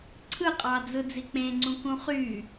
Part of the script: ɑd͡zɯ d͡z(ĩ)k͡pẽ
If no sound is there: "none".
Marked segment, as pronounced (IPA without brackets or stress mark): i